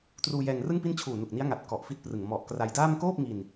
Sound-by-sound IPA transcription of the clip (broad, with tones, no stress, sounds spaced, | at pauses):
t r uː˧ j ɛː˧ ŋ r ɯ˥˩ ŋ p i˥˩ n t͡ɕʰ uː˨˩ n u˨˩ k̚ n i˦˥ a̯ ŋ a˨˩ t̚ k ɔ˨˩ ʔ f i˦˥ t̚ p r ɯ˨˩ ŋ m ɔ˨˩ ʔ k r a˧ j d aː˥˩ m k oː˥˩ p̚ ŋ i˧ n